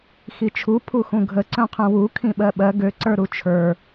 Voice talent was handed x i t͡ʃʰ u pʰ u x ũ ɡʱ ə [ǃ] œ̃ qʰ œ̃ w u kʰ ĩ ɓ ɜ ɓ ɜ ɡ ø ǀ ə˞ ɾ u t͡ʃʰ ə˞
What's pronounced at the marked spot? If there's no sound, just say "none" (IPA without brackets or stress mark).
ǀ